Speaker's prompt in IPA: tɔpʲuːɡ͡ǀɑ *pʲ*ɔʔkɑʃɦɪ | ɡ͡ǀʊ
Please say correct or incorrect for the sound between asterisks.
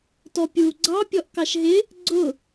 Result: correct